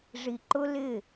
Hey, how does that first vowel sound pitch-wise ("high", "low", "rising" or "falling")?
low